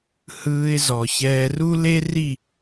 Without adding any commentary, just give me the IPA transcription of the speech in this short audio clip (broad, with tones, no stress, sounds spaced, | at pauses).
h ɯː˧ ɪ̯ z ɔ˨ ç ɛː˧ r u˦ l e˦ r i˦˨